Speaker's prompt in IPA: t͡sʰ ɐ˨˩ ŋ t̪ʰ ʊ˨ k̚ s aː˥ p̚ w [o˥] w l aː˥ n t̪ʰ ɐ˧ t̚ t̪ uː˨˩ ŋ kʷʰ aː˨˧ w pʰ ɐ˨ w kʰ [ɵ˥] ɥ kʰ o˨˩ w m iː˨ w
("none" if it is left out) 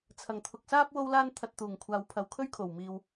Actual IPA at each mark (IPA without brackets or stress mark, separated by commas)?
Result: o˥, ɵ˥